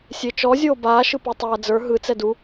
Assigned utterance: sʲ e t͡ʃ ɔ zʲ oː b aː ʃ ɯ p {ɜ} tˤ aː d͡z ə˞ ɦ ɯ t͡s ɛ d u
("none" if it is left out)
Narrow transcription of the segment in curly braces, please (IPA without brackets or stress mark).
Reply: ɜ